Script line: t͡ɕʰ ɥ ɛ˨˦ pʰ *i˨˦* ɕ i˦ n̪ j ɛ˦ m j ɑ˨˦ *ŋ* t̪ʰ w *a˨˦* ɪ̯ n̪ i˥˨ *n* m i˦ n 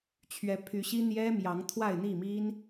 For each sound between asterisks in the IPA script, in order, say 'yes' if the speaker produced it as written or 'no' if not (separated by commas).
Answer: no, yes, no, no